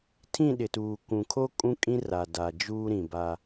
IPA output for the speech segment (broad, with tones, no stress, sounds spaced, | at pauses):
tʰ ĩ˦˨ ɗ ɪ˨ t uː˨ k ũ˨ kʰ o˦ kʼ ũ˦ kʼ ĩ˦ r a˨ d a˨ d͡ʒ uː˦ ɾ ĩ˨ b a˦